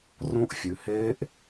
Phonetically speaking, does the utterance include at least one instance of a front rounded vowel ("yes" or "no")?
no